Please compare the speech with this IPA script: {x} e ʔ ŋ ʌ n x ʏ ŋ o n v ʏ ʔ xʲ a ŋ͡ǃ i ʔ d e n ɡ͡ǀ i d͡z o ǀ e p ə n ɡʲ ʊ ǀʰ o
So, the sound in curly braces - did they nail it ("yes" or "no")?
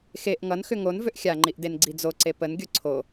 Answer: yes